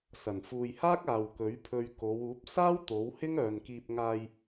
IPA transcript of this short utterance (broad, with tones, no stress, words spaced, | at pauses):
sɐ˨˩n fuː˨jhaː˥k̚ aː˨wkɵ˨˥ɥpʰɵ˧ɥ ko˨˧wuː˨˥p̚ saː˥w t̪o˨˥w hɪ˥ŋœː˨nkiː˧p̚ ŋaː˧j